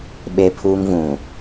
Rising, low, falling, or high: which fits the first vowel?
high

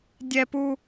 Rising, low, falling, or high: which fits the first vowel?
high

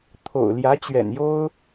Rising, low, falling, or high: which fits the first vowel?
low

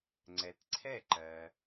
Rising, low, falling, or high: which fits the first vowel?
low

